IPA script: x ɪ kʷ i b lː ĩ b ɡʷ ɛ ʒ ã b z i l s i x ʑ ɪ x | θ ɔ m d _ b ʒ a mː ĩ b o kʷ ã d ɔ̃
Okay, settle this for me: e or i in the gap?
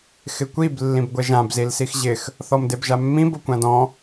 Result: e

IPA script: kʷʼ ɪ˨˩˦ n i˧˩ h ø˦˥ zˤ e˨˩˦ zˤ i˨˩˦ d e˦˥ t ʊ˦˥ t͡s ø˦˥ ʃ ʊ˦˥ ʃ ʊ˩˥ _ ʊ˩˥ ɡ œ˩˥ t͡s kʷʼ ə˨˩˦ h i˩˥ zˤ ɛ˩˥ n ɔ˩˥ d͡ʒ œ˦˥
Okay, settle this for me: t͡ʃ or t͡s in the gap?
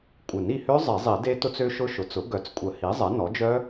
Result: t͡s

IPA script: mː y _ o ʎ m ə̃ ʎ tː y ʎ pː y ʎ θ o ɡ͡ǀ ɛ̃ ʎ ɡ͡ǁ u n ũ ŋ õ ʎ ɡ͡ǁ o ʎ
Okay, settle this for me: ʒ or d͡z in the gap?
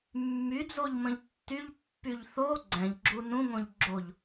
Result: d͡z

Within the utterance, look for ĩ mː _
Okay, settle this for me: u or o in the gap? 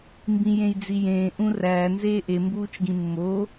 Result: o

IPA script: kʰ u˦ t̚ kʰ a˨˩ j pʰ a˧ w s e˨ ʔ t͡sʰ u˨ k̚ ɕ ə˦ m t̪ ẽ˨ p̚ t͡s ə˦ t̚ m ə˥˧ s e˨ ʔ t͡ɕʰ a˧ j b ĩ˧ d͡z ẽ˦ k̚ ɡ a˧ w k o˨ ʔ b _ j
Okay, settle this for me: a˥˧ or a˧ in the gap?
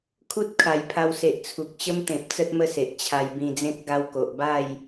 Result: a˥˧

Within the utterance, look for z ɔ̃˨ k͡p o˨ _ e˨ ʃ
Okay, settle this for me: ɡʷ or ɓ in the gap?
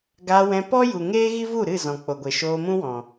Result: ɡʷ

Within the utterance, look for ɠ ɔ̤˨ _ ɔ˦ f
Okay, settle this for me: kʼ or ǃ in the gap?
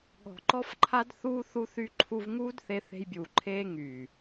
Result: ǃ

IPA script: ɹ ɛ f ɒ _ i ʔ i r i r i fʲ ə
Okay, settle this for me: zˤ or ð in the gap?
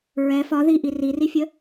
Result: ð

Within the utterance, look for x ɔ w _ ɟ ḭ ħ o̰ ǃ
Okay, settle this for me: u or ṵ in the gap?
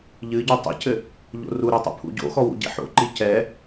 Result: ṵ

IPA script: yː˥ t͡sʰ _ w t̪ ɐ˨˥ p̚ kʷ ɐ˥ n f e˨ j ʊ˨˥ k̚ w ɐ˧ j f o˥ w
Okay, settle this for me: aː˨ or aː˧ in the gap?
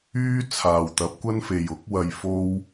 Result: aː˨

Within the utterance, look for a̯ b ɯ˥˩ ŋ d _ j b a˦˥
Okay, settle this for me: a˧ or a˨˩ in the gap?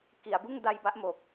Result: a˧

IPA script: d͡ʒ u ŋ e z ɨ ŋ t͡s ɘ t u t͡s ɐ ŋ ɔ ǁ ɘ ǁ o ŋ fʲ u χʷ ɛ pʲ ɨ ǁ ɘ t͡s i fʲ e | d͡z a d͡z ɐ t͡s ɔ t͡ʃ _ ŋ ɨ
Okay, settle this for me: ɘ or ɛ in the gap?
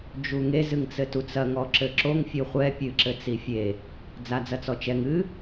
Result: ɛ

